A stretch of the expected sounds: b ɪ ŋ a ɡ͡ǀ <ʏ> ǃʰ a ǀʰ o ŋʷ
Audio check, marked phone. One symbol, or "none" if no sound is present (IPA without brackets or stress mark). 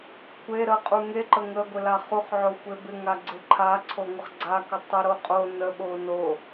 ɪ